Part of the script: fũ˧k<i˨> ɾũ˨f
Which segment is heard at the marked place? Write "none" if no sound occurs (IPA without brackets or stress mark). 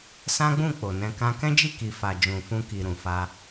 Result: i˨